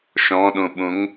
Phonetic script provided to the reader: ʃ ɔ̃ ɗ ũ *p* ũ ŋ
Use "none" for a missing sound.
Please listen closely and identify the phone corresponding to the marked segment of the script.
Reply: ɓ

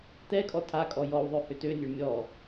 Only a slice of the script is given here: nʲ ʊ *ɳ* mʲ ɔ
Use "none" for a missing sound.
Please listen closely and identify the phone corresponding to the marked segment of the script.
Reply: ɳ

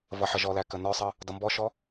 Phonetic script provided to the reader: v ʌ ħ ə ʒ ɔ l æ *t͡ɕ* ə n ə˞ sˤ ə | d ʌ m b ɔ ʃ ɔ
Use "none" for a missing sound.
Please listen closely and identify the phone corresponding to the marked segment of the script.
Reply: k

